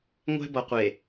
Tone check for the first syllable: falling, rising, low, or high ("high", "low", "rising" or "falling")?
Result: high